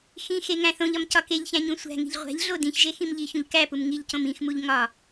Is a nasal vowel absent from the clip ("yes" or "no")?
no